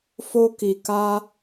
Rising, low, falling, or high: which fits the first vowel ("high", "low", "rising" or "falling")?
high